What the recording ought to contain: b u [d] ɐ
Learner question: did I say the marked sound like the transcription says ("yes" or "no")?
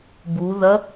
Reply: no